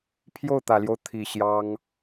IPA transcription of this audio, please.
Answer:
pʰ j o˥˩ ʊ̯ t̪ ä˨˩ l j o˦ ʊ̯ t̪ʰ i˨˩ ɕ j ɑ˥ ŋ

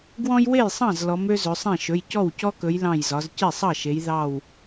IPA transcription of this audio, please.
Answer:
ɡ w ɔ̃˦ j w e˥˩ j sˤ ɑ̃˥˩ z l ɔ˩˧ m ø˦ z ɵ˩˧ sˤ ẽ˥˩ ʃ ɵ˩˧˩ j c ɔ˥˩ w c ɔ˦ k ɵ˩˧ j l ɑ̃˧˩ j z ɒ˩˧ z c e˥˩ sˤ ɑ˥˩ ʃ e˩˧ j ð ɑ˧˩ w

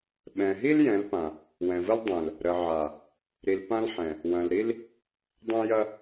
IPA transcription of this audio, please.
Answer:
ɓ ɛ̃˨ ɦ i˦ l j ɛ̃˨˦ l p ã˨ | w ɛ̃˨ v ə˦ l dˤ ɛ̃˨ l | ɾ ə˨ ʕ a˨ | ɾ i˨ l p ã˦ l ħ ɛ̃˨ | w ɐ̃˨ l ɾ i˦ l | dˤ ɐ̃˦ j ɐ˦

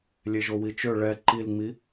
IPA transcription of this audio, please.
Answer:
lʲ e ʒ o w i t͡ʃ ø ɭ ɛ ǃ i l ŋ͡m i

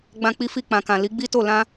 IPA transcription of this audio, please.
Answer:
ɡ͡b ã˧ k͡p i˧ f i˧ k͡p ã˨ k ã˨ l i˨˦ ɡ͡b i˦ t o˦˨ l ã˧

